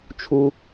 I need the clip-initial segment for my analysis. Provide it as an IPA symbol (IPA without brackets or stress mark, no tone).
t͡ʃʰ